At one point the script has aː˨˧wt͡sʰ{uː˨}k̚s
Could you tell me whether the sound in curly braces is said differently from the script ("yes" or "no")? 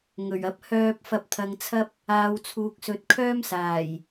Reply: no